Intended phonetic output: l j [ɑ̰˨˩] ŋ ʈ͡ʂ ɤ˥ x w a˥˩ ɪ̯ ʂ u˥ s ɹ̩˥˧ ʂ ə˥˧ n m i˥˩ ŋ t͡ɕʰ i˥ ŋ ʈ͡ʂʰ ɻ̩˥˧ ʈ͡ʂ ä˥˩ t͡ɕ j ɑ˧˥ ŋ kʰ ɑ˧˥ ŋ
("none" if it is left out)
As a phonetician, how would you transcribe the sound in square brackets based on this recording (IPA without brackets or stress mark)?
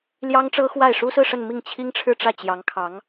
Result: ɑ˥